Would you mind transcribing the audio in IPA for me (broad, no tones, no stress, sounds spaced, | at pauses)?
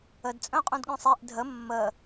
ə d t͡sʼ œ̃ qʼ ũ d ɠ œ̃ sˤ e ʔ dʱ ə mː ə